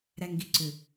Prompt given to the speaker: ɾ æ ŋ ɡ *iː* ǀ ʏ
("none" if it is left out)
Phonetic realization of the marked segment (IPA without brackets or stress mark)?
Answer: i